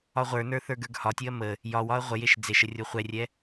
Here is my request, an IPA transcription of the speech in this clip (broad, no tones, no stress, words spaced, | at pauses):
ɒʁʷə˞nə˞ θə˞ɡə˞ɡhɒtʲɯɐ̯ mə | jɒwɒɐ̯ ʁʷəjeʃ d͡zeʃə rʲoχʷɛrʲɛ